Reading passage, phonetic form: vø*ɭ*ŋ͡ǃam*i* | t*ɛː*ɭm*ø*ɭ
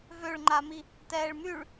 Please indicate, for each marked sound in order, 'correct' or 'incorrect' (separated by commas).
correct, correct, correct, incorrect